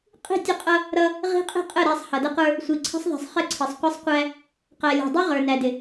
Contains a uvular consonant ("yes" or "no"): yes